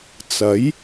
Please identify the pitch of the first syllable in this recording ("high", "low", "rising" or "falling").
rising